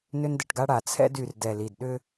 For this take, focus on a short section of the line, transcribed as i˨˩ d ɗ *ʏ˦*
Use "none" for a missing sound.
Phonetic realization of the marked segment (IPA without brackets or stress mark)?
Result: ʏ˦